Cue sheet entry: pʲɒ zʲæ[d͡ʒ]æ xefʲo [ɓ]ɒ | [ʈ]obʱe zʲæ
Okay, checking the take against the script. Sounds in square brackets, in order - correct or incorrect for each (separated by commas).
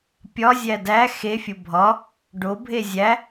incorrect, incorrect, incorrect